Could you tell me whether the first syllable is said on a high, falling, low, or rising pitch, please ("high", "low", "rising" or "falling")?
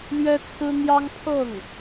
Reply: high